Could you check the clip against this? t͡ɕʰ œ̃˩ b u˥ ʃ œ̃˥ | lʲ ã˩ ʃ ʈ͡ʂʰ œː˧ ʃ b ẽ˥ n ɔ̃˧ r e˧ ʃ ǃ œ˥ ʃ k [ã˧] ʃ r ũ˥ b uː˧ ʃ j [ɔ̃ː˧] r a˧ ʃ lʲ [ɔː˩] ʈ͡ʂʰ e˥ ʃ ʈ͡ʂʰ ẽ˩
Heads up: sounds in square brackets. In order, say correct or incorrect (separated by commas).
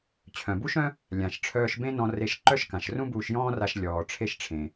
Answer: incorrect, incorrect, correct